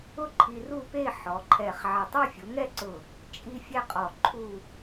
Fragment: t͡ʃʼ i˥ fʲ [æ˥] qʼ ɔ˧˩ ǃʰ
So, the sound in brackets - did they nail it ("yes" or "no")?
no